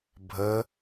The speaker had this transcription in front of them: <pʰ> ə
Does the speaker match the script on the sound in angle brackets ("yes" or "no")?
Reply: no